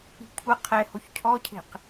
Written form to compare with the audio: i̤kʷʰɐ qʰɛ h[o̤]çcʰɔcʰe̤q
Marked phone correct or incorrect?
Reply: incorrect